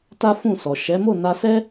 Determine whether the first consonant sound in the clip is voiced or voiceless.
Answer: voiceless